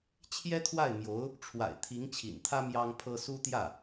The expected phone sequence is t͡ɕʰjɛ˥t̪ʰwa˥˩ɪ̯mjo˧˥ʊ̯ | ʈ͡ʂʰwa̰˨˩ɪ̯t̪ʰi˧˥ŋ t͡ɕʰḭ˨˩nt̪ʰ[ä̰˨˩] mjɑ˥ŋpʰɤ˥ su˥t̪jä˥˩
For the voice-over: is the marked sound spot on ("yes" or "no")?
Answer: no